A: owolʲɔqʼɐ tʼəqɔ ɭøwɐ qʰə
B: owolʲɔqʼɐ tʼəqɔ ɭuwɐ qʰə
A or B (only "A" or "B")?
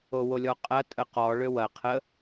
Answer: A